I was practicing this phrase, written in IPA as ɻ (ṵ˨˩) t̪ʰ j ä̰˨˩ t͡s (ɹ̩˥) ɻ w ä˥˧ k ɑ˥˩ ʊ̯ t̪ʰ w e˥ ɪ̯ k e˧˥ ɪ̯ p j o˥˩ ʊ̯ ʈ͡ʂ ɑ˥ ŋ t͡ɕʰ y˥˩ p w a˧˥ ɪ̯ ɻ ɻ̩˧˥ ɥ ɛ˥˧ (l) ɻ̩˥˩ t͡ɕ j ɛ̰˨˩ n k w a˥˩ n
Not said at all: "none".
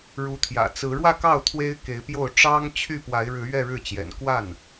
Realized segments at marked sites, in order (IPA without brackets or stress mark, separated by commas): u˧˥, ɹ̩˧˥, ɻ